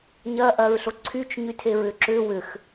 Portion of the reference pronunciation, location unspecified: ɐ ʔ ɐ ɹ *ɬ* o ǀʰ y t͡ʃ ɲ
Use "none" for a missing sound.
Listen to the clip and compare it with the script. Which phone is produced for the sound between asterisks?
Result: ɬ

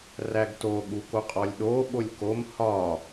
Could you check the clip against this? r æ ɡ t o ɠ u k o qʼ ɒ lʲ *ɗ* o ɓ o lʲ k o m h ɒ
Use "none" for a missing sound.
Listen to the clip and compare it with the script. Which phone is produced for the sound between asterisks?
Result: ɗ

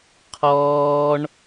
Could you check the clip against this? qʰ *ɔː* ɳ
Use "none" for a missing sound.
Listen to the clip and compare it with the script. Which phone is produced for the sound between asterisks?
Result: ɔː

